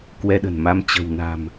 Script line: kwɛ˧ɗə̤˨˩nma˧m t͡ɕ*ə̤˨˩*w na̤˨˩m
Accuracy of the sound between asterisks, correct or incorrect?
correct